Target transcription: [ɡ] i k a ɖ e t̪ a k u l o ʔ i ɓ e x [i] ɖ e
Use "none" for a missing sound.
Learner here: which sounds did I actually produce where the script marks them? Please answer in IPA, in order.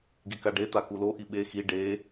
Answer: ɡ, i

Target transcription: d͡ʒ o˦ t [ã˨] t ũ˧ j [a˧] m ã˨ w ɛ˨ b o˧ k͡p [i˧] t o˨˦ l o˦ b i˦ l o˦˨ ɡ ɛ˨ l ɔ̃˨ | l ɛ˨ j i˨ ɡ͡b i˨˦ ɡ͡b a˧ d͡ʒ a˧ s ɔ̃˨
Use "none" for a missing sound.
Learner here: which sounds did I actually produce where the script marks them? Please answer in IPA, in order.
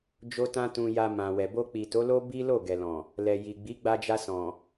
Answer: ã˦, a˧, i˨

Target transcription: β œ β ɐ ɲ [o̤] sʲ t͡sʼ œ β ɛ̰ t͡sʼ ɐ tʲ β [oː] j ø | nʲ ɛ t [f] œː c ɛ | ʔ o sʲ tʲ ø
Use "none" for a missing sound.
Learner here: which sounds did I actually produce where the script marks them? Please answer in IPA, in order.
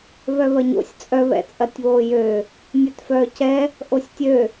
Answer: o̰, oː, f

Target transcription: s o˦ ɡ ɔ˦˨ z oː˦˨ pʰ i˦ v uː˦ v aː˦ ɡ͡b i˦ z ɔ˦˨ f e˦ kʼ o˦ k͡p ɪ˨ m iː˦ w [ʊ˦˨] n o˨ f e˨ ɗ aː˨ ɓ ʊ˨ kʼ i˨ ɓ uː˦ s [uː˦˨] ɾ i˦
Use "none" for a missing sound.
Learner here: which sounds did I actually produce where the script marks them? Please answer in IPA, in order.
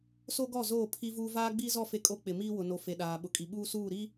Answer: ʊ˨, uː˦˨

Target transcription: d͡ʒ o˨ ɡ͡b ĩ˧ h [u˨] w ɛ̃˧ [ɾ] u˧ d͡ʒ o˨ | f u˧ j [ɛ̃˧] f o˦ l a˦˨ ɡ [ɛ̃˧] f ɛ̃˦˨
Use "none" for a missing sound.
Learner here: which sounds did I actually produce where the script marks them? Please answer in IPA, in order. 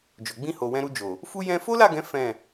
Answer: o˨, ɾ, ɛ̃˧, ɛ̃˨˦

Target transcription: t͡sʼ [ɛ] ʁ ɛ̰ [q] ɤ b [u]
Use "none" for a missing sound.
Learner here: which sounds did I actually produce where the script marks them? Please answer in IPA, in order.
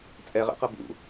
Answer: ɛ, q, ṵ

